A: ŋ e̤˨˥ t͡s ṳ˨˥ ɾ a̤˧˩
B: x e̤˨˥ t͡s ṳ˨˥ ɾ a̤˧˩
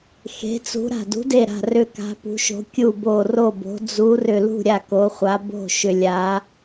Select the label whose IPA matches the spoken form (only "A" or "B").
B